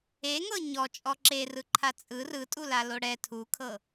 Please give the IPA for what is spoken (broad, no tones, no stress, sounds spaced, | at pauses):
e ŋ ɤ ɲ ɔ t͡ʃʼ ɔ ǁ e r ɯ ǃʰ a t͡sʼ ɯ r ɯ tʼ u l a l o ɽ ɛ tʰ u kʰ ɤ